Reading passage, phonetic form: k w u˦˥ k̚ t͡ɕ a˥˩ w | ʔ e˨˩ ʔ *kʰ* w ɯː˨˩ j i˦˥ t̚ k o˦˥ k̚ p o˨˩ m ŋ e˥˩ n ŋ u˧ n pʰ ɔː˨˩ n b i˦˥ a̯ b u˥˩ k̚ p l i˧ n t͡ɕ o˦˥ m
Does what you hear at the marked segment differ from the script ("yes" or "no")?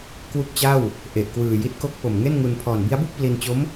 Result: yes